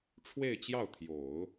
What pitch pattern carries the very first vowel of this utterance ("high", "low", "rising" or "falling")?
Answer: falling